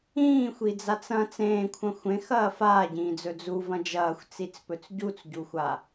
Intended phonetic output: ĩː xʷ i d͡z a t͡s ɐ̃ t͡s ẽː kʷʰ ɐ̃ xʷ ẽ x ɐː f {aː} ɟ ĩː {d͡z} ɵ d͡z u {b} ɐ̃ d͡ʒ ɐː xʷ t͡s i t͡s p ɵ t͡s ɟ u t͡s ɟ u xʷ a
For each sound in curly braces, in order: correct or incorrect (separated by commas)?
correct, correct, incorrect